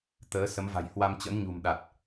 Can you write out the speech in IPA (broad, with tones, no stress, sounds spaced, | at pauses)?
t̪ əː˨˦ s ə˨˦ m v a̤˨˩ j h w a˧ m t͡ɕ ə̰˧˥ n ɲ ṳ˨˩ m ɗ a˨˩ t̚